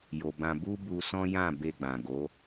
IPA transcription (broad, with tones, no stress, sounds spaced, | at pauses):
j o˨ b ã˧ b u˦ b u˧ s ɔ̃˦ j ã˦˨ b e˧ ɡ͡b ã˨ ɡ o˨˦